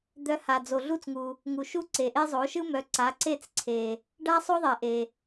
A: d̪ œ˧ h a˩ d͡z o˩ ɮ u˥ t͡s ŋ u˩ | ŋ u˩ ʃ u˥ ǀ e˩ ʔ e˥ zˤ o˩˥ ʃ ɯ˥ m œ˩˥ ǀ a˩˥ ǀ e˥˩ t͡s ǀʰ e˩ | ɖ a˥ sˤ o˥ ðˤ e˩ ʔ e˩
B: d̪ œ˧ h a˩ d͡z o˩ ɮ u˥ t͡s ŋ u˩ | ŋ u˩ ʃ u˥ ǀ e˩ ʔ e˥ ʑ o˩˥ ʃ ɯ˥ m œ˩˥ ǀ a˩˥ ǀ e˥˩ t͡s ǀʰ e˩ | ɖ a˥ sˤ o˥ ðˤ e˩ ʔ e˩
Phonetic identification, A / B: A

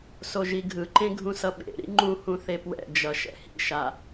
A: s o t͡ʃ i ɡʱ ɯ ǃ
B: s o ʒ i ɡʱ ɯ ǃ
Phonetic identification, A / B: B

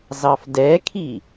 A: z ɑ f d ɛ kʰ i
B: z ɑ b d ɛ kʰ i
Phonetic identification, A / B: A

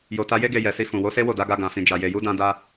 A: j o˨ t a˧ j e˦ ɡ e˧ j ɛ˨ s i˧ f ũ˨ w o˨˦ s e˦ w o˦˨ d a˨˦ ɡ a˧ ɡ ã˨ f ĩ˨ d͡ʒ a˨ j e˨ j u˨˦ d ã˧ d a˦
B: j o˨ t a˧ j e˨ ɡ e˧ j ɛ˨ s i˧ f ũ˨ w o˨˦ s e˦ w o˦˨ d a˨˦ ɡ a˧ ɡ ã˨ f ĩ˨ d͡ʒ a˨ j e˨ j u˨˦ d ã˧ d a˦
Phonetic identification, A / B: A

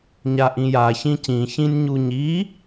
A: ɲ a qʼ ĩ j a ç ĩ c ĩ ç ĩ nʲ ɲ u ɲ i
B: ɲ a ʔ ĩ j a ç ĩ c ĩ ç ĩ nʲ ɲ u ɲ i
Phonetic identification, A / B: B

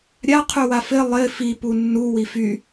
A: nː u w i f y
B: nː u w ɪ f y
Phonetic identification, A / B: A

